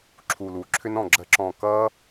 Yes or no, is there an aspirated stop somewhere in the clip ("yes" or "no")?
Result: yes